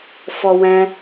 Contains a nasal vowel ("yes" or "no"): yes